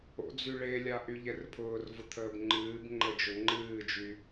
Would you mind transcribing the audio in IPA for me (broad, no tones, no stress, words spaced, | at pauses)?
o̰d͡zy ɭelʲa ʔyʎɛrpʰʊːrvʊ t̪ʰəːbŋ͡ǃɨːbŋ͡ǃə d͡ʒʊŋ͡ǃɨːd͡ʒy